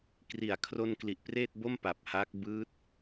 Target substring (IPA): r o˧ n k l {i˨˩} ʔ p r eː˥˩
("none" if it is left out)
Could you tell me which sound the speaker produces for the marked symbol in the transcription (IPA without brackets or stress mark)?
i˨˩